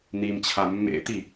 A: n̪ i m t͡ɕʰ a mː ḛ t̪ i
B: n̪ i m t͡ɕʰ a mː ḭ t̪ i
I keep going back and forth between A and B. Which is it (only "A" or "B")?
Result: A